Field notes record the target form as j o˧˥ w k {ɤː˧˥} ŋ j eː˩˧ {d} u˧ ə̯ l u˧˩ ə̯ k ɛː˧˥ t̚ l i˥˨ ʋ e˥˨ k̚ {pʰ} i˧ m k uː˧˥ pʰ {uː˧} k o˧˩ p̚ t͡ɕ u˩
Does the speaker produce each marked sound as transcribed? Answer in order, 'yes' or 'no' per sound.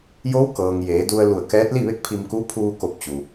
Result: no, yes, yes, yes

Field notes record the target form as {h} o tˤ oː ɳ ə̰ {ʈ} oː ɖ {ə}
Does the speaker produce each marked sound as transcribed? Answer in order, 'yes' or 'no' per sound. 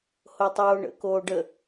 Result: yes, no, yes

